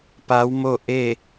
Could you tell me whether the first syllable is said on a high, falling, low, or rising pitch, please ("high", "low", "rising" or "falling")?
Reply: rising